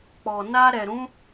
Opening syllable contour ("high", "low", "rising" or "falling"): low